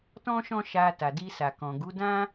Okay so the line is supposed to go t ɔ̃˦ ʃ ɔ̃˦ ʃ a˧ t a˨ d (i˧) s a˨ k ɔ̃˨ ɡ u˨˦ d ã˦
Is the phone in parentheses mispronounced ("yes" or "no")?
no